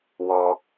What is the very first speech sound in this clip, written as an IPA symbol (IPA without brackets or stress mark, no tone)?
w